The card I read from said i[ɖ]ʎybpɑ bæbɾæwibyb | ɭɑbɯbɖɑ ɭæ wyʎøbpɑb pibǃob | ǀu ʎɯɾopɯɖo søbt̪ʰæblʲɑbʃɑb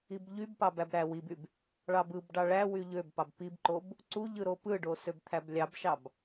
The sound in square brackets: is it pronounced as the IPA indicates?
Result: no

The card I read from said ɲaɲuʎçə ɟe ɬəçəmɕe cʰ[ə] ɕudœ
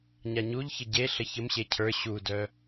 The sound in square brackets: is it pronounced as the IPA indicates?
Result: no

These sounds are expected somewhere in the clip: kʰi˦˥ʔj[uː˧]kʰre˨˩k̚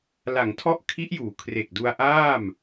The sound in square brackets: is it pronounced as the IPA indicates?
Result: no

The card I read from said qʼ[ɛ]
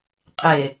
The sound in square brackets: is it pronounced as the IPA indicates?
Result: no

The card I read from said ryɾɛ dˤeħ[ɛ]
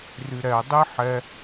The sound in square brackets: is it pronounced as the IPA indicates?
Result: yes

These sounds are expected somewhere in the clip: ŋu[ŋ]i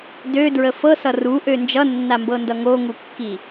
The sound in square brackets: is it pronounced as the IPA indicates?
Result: no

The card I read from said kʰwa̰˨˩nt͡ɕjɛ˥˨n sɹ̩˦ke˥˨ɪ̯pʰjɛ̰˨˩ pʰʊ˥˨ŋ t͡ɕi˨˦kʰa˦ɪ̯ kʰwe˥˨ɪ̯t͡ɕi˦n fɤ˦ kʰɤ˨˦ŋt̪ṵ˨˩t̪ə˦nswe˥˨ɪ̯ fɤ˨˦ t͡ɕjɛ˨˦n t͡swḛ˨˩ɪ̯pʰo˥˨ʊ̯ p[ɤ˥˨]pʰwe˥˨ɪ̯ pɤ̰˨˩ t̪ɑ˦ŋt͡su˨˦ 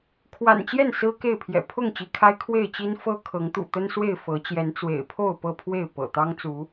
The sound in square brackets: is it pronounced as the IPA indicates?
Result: yes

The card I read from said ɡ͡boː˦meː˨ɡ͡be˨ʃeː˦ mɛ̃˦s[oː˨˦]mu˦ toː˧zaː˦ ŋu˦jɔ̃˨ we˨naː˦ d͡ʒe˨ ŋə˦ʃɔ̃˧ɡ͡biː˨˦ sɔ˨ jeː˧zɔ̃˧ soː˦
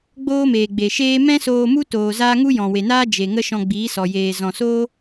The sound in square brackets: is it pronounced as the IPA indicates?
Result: no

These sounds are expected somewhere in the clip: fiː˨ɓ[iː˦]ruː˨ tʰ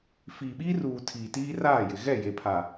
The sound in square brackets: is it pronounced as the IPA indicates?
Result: yes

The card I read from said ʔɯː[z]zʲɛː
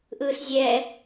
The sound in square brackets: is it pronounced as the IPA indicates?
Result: no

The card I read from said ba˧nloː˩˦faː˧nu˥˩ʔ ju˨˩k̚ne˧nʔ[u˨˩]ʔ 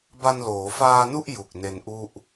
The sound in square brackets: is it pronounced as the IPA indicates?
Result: no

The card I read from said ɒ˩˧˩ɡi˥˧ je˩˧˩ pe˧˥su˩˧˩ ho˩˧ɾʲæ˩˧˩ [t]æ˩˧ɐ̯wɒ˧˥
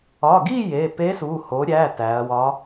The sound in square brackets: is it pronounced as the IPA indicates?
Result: yes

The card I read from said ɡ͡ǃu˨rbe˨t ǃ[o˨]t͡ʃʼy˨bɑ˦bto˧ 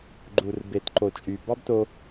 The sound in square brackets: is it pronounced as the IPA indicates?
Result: yes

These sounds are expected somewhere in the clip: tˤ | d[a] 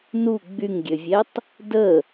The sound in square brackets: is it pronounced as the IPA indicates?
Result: no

